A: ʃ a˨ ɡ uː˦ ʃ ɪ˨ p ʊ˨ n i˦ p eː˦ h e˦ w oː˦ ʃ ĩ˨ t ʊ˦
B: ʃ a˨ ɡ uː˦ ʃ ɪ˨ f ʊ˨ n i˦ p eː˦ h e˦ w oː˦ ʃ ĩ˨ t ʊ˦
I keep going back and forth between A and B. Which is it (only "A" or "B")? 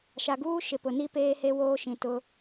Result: A